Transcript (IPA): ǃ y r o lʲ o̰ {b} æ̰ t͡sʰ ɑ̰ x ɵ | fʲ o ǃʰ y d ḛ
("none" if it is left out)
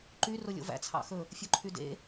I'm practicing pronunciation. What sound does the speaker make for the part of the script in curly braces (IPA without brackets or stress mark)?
v